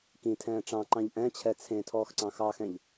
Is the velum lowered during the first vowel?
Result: yes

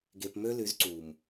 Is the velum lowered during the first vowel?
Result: no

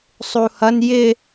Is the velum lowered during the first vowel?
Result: no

